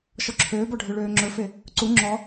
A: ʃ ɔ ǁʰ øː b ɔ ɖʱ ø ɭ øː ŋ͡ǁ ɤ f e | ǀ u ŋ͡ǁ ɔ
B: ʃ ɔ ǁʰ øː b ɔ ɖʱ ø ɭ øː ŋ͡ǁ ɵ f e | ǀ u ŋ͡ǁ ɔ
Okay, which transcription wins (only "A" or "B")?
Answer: B